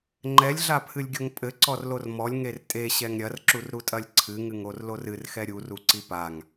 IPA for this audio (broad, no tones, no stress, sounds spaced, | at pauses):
ŋ͡ǃ ɛ lʲ ɮ a pʰ ɨ lʲ ɡʲ o ŋ pʼ ɘ ǀ ɔ r l o r m ɔ lʲ ŋ e r tʼ e ɕ ɛ ŋ ɾʲ ɐ r ǁ u r ɾ u tʼ ɐ lʲ ǀʰ ɨ ŋ ɨ ŋ o r l o r ɨ r x ɛ ɾʲ u r u ǀ i p a ŋ